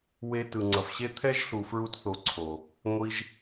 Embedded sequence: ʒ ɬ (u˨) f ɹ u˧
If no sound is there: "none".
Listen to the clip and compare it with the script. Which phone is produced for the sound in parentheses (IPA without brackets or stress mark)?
u˨